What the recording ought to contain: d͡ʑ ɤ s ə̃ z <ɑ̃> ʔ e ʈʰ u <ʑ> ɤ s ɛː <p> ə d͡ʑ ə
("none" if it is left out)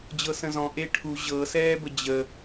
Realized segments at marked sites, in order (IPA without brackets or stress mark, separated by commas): ɔ̃, ʑ, b